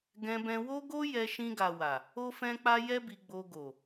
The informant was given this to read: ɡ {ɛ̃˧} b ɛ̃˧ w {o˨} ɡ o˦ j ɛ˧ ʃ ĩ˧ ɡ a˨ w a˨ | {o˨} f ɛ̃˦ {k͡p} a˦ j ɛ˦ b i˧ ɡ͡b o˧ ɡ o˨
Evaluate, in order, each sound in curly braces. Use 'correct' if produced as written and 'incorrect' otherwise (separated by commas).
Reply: correct, incorrect, incorrect, correct